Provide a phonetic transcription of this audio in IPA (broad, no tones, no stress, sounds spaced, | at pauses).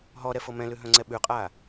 ɦ ɔ ɾ ɛ f ɤ m ɛ̃ l ʉ ɦ œ̃ ŋ͡ǀ ɛ ɓ ʉ qʼ a